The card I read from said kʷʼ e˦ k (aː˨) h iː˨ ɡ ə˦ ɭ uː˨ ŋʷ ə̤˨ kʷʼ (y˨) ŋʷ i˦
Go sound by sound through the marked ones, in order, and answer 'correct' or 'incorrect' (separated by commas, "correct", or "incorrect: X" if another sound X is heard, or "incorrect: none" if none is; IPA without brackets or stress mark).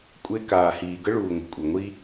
correct, incorrect: i˨